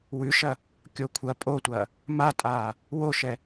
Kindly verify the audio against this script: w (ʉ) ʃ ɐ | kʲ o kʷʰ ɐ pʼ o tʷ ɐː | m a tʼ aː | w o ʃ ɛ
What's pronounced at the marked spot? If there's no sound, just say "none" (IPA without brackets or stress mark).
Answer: ʉ